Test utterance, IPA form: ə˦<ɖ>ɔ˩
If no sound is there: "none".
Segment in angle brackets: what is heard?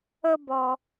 b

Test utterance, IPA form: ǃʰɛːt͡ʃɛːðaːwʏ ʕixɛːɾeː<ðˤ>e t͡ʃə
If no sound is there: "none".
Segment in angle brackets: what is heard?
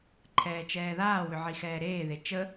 ð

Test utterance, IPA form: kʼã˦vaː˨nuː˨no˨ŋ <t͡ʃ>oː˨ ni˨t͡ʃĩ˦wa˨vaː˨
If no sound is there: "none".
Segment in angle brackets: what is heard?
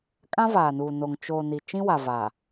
t͡ʃ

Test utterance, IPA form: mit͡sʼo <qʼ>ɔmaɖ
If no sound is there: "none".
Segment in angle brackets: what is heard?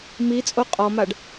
qʼ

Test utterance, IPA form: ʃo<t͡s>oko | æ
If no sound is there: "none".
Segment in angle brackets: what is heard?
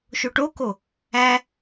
ʈ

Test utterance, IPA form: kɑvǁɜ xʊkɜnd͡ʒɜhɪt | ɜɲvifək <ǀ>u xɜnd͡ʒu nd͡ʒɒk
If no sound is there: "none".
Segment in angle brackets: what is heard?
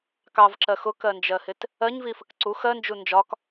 ǀ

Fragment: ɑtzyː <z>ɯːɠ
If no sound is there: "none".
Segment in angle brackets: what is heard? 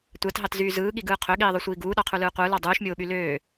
z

